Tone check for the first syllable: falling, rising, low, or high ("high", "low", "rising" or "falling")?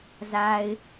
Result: low